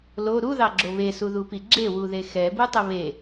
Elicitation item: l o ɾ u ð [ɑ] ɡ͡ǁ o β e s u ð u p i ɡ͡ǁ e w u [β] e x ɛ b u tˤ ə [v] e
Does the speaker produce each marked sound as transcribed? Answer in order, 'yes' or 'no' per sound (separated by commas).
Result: yes, no, no